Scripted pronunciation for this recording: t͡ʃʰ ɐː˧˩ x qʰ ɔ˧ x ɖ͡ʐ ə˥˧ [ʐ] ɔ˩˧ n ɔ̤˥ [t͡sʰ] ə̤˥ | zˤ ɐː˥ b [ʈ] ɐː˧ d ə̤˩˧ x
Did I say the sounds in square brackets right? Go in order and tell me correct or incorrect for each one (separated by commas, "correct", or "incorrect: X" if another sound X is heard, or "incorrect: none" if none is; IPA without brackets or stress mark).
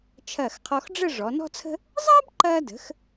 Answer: correct, correct, incorrect: ǃ